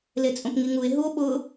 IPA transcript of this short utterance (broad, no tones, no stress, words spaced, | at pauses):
let͡sʼõpŋiŋue̯ ɦuo̯ ɓʊ